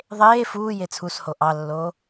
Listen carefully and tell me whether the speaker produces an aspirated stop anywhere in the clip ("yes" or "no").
yes